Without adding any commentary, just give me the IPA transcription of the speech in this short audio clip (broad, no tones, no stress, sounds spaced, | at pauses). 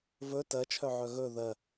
v ɵ t ɜ t͡ʃʰ œ ʕ œ ɣ ɵ ð ɜ